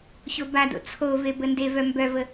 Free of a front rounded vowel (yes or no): no